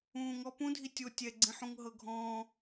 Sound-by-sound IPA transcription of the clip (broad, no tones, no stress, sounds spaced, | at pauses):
ũː ŋ ɔ p ũ dʱ i tʲ o tʲ ɛ ɡ͡ǀ ĩ ħ ũ ŋ ɦ ɤ ɡʱ ɔ̃ː